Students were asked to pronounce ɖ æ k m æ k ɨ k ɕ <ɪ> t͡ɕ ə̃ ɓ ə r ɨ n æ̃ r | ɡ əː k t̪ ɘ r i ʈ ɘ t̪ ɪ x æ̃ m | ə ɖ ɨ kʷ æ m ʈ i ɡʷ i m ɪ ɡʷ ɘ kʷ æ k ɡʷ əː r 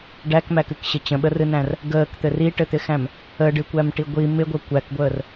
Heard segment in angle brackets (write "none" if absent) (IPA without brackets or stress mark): ɪ